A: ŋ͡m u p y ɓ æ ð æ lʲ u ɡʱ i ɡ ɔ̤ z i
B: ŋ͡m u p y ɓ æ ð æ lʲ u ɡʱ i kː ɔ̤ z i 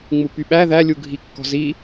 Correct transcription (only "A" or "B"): B